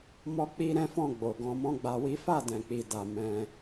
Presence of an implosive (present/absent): absent